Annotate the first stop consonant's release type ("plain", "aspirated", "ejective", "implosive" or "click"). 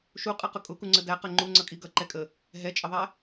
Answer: ejective